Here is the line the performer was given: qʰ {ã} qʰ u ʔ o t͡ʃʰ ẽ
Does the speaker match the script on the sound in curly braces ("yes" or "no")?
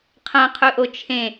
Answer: yes